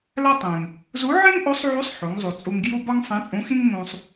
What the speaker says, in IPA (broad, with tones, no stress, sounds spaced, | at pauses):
l æ˥ tˤ ẽ˩ ŋ | z u˧˥ ʕ ĩ˥ ŋ ʔ o˧˥ sˤ ʕ u˧˥ sˤ ħ o˩˧ ŋ zˤ u˩ t͡sʼ u˧ ŋ ɡ j u˥ b ɒ˥ ŋ sˤ ĩ˧˥ t͡sʼ ũ˧˥ x ĩ˥ ŋ m ũ˧ sˤ